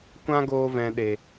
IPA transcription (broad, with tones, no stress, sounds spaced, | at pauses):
kʷ ã˦ ɡ oː˧ v ɛ̃˨ ɗ e˨